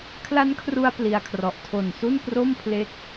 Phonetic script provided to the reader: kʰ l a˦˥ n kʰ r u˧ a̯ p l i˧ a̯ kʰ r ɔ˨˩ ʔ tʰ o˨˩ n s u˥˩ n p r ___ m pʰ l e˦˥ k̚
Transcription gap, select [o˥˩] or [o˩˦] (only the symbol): o˥˩